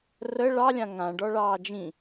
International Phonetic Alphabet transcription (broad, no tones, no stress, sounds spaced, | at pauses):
r ə ɭ ɑ lʲ ã ŋ ã ɖ ɔ ɭ ɑː d͡ʒ ĩ